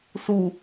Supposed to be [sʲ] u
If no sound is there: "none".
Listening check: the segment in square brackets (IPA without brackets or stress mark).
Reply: s